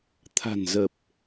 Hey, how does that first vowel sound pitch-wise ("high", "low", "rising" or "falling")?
low